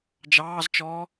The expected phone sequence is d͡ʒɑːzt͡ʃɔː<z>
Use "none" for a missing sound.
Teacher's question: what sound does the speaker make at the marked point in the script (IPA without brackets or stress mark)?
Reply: none